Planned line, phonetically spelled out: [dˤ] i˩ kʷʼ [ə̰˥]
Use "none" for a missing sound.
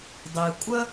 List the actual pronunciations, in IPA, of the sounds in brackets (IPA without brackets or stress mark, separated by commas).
dˤ, ə˥